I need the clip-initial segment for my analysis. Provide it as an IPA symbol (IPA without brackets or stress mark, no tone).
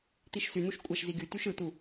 t̪